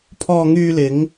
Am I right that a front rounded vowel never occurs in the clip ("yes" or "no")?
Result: no